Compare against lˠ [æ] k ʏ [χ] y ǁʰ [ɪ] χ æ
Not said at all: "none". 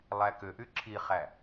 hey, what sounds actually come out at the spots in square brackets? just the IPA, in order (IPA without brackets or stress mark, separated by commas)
æ, ʔ, i